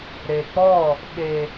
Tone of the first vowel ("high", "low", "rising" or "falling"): low